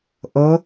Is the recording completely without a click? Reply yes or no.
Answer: yes